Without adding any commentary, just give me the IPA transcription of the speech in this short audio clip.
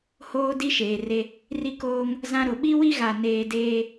h oː˦ d i˦ ʃ eː˨ r e˦ | r i˦ k oː˦ ŋ | z ã˦ ɾ ʊ˨ ɓ i˦ w i˦ ɣ a˨ n eː˦ d eː˦

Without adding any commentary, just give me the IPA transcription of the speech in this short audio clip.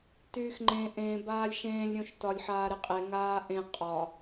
t yː x ŋ͡ǃ ẽ ʔ ẽ b aː lʲ ʃ ẽː lʲ ɾʲ õ ʃ t ɒ lʲ ħ aː ɾ e qʼ e ŋ aː ʔ ẽ qʼ ɒ

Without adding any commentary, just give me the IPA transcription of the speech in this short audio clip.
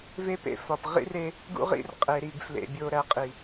v e˦ p ḛ˦˨ f ɒ˨ p ʁ ḭ˦ r e˦ | ɡ ṵ˦ ʁ ḭ˦ r qʼ e˨ ɾ i˨ ɡ f l ḛ˨ bʲ o˨ ɾ æ˨ qʼ i˨

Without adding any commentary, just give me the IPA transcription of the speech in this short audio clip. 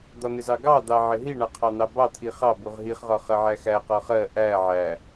d̪ ɒ n̪ ɪ z ɑ ɡ ɑ d̪ ɑ ʕ ɪ ɦ i ɳ ɑ qʰ ɑ n̪ ɑ b ɑ t̪ʰ i χ ɑ b u ʁ ɦ i χ ʁ ɒ χ ɜ ʕ æ x æ q ɒ χ ɜ ʔ æ ʕ æ

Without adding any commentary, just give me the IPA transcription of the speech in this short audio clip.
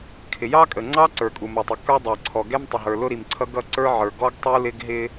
kʰ ɪ˩ j ɑ˥ kʼ ə˩ ŋ͡ǀ ɑ˥ ǀ ə˞˩ kʼ u˩ m ʌ˩ tˤ ɪ˩ k ə˞˥ dˤ ɑ˩ ǀʰ ɔ˩ ɡ ɛ˥ m tˤ ɪ˩ ɦ ə˞˩ l ʊ˥ ɾ i˩ m ǀʰ ʌ˥ ɡ ʌ˥ ǀ ə˞˥ ʕ ə˞˩ ɡ ɔ˥ ɡ tˤ u˥ l ɪ˥ ɡ ɦ ɪ˥

